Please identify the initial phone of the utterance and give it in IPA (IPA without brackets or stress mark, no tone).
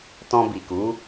t